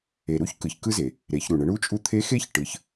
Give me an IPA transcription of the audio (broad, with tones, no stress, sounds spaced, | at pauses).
e˩ ɾ u˥ ç k ɯ˩ ç k ɯ˥ z e˩ | ɾ e˩˧ ç ɾ u˩ ɳ ə˩˧ ɳ u˧˥ t͡ʃʼ u˧ t̪ʰ e˧˥ x e˥ ç ʈ ɯ˩˧ ç